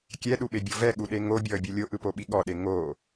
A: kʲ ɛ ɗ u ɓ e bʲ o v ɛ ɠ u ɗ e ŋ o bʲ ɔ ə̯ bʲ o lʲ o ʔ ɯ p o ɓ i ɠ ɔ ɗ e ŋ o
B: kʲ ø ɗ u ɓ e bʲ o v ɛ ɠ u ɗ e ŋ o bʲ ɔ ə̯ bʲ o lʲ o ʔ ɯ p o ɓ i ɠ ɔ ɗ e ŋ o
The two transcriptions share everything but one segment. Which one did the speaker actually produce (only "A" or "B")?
A